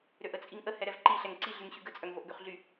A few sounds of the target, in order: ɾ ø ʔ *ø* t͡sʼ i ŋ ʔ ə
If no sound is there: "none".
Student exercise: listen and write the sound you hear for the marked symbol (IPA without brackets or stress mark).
ə